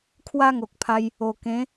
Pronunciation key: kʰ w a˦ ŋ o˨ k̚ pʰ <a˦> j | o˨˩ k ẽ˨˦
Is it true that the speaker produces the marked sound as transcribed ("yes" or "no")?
no